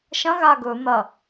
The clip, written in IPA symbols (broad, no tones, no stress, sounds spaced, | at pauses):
ʃ ɐ̃ ɣ a ɡ ɵ n̪ ɐ